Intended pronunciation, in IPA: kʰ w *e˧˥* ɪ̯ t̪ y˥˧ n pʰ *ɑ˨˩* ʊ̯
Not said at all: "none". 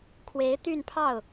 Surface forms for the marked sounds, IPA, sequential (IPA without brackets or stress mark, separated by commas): e˧˥, ɑ˥˩